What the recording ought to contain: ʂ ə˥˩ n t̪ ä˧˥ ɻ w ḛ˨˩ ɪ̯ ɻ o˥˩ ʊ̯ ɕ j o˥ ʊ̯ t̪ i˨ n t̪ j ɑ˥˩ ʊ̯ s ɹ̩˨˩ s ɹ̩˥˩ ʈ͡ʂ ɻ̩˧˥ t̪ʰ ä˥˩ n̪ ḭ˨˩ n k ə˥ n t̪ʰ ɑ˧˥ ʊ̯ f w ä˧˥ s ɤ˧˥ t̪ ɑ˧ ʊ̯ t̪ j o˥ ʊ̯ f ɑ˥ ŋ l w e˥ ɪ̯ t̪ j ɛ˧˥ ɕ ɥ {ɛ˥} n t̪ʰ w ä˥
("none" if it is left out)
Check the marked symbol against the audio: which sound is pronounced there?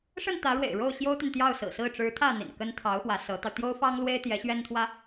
ɛ˥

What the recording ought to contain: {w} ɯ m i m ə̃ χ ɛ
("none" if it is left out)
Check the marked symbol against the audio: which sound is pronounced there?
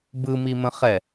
b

